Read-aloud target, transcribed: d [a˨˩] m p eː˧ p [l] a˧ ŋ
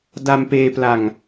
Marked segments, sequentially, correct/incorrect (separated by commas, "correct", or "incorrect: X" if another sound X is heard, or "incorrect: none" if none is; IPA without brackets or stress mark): incorrect: a˧, correct